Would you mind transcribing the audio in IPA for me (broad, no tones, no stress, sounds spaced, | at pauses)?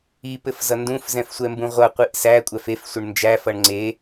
i p ɘ f z ʌ n d ũ f z ɛ̃ f sʷ ɛ m b ũ ʁʷ ʌ qʷ i ʔ s æ kʷʼ æ f e f sʷ ə ɳ n d͡ʒ æ f ʌ ɳ ŋ͡ǀ e